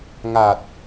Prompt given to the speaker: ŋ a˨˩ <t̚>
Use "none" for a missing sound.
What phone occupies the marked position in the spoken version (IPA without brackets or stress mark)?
t̚